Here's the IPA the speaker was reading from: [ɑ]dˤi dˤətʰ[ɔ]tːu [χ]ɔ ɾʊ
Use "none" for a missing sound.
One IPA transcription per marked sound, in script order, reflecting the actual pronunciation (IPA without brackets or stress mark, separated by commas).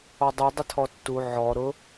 ɔ, ɔ, ʕ